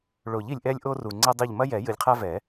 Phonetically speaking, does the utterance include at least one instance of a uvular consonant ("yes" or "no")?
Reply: yes